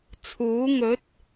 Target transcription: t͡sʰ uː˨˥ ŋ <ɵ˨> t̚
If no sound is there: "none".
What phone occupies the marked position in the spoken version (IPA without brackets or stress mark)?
ɵ˨˥